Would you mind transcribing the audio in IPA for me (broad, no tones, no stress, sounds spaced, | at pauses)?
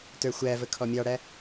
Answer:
t ə˞ xʷ æ v ə kʰ ɔ mʲ ɑ ɽ æ